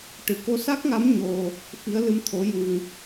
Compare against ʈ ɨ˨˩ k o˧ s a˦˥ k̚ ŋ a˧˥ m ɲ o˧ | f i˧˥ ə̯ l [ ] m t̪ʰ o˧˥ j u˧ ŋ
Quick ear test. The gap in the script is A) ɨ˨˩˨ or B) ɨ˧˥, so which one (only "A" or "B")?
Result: B